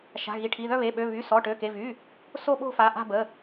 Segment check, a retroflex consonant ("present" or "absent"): present